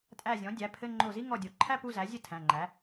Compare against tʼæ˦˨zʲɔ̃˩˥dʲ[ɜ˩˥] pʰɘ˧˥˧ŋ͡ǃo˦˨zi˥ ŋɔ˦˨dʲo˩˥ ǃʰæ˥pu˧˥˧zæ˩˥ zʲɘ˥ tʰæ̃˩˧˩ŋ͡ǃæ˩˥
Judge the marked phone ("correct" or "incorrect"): incorrect